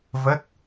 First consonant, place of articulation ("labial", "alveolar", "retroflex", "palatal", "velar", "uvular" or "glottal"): labial